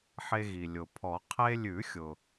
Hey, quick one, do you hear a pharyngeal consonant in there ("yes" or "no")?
yes